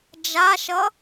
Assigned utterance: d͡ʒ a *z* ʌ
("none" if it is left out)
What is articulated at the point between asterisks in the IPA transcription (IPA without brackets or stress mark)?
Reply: ʃ